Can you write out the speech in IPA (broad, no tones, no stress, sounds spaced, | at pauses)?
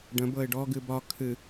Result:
ɖ ə̃ b ɤ ɪ̯ ɖ ɔ ɡ ɨ b ɒ kʰ ɨ